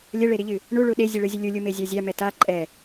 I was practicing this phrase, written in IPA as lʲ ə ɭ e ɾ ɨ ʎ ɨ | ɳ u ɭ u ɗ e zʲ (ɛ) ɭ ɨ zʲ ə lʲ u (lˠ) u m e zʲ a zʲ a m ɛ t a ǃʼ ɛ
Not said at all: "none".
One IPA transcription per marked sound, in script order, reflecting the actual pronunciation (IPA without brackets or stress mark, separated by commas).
ɨ, lʲ